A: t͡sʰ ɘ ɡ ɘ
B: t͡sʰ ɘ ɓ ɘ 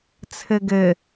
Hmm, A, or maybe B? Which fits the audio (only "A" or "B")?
A